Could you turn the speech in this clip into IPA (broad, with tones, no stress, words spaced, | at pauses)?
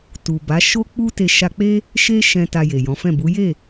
tu˨ba˨˦ʃo˦k͡pu˦ te˧ʃa˧k͡pe˦ | ʃe˦ʃɛ̃˧ ta˧je˨jɔ̃˨˦fɛ̃˦˨ bu˨˦je˦˨